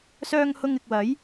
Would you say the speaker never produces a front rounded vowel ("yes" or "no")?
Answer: no